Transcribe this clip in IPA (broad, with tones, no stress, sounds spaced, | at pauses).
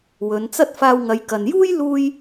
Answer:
w ɵ˨˧ n t͡s ɐ˥ t̚ f aː˧ w ŋ ɐ˨˧ j k ɐ˨ n j uː˥ j l uː˥ j